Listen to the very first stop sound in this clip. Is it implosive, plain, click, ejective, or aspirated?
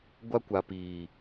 plain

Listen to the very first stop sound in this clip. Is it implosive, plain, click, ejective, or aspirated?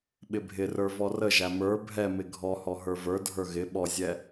implosive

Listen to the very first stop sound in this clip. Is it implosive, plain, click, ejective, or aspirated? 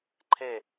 click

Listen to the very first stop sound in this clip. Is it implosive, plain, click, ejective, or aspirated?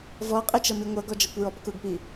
ejective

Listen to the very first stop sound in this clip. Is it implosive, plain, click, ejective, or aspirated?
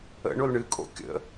ejective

